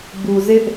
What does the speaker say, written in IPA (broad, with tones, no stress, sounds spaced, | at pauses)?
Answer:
b u˨ z ɪ˦ ʔ